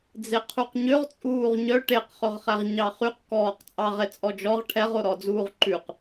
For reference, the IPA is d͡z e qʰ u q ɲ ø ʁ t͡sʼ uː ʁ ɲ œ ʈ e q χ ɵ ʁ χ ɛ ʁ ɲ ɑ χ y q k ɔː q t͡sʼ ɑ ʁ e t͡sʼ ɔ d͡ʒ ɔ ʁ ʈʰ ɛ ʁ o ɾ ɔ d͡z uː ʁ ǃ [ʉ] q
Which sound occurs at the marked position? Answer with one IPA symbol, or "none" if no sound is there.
ʉ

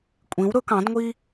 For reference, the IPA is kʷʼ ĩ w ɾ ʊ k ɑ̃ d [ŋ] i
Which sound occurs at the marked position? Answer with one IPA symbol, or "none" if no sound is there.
ŋʷ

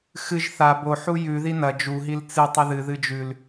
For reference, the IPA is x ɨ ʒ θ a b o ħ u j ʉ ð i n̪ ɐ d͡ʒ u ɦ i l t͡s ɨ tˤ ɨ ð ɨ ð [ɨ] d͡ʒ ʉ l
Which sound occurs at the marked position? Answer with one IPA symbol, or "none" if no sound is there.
ɨ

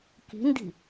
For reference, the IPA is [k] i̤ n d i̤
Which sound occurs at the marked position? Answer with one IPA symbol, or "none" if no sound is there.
k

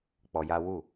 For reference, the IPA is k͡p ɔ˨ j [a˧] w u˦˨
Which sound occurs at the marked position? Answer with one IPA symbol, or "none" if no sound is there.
a˧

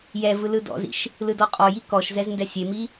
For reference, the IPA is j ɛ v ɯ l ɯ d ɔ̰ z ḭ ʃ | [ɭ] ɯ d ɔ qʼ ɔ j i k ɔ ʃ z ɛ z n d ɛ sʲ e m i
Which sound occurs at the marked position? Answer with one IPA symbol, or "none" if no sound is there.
l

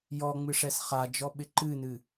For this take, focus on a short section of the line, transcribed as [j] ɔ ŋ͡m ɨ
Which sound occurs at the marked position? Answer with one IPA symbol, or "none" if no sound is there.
j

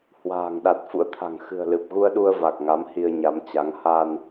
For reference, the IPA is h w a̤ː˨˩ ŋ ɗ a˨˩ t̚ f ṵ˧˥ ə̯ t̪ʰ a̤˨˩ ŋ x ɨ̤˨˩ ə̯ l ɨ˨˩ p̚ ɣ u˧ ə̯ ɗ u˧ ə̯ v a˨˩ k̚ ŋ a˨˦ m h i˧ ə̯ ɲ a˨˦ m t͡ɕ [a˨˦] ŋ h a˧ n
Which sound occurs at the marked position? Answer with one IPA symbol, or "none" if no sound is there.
a˨˦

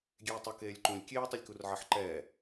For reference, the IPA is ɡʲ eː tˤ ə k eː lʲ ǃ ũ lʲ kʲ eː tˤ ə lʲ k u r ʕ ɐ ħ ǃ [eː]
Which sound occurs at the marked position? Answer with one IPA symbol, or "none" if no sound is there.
ɛː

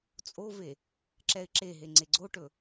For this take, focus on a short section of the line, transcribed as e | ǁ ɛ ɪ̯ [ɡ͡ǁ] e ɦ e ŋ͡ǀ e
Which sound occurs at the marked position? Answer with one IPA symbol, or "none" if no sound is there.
ǁ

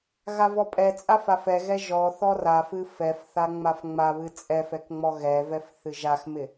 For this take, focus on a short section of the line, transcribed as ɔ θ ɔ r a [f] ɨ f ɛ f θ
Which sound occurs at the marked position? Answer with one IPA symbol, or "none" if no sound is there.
f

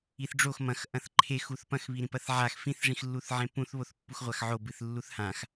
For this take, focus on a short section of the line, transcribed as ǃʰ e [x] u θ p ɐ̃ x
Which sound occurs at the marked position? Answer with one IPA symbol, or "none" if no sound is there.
x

